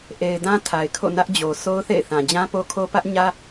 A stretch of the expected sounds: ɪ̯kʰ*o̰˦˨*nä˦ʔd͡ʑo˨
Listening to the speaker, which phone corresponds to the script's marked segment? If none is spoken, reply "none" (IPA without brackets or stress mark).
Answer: o̰˦˨